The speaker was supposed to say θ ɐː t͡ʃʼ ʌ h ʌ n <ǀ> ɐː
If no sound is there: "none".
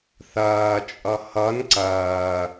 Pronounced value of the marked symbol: ǀ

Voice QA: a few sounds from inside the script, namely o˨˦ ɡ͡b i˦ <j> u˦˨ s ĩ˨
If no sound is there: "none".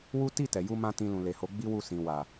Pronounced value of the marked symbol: w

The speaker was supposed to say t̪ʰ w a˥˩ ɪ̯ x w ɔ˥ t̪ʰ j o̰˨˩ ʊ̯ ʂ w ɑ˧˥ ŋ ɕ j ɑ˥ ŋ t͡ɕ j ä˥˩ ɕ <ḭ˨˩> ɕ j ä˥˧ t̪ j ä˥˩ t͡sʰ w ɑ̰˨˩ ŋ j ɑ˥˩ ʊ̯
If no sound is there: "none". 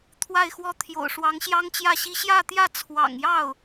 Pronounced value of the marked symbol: i˥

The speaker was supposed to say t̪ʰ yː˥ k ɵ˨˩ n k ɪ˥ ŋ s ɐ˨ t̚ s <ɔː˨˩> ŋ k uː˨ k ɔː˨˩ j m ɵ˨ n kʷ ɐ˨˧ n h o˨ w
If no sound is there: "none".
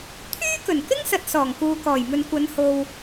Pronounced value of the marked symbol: ɔː˨˩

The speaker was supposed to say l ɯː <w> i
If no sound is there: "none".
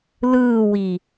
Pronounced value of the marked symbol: w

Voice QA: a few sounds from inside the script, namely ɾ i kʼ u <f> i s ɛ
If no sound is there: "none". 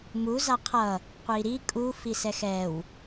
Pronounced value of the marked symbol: f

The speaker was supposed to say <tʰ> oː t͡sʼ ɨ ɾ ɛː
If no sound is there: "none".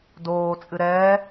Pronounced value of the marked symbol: d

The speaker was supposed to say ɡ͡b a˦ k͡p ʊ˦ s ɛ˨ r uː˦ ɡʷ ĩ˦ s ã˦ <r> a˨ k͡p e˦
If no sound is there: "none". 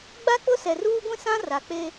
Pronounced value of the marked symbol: r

